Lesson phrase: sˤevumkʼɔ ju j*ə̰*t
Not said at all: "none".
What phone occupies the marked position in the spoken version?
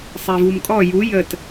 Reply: ə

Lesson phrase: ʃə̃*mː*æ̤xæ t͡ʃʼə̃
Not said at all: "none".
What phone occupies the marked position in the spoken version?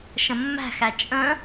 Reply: mː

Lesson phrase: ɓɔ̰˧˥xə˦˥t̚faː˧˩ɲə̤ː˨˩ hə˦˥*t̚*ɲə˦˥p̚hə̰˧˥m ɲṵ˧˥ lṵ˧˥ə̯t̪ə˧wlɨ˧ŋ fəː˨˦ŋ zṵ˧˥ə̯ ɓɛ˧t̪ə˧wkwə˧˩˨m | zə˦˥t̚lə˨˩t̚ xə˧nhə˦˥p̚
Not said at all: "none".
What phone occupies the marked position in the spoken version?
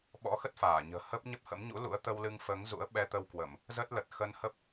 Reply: p̚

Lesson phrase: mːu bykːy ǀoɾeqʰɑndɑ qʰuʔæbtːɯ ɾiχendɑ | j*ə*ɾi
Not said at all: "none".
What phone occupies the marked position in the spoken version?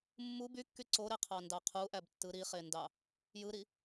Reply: ɯ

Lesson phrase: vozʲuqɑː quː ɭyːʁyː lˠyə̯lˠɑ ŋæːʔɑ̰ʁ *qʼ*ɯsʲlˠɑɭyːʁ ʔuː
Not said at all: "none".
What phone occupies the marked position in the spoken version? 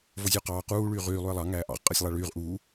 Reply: qʼ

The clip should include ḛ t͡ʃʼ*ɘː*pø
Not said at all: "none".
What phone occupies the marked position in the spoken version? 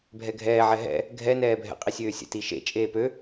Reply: eː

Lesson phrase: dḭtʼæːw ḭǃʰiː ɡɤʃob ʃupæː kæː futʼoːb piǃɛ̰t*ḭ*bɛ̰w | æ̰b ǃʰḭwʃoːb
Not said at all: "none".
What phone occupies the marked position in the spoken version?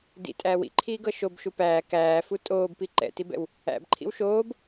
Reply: i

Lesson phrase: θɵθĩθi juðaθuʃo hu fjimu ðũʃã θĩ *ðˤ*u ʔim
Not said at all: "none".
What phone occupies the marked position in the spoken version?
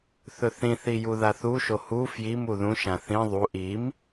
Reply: ðˤ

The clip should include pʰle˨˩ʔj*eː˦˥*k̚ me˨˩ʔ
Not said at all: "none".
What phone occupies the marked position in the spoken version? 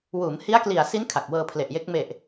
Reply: e˦˥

